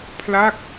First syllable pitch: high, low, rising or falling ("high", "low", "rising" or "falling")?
falling